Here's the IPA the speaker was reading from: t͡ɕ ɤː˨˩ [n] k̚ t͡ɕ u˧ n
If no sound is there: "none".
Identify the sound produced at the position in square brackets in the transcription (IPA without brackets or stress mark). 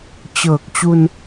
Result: none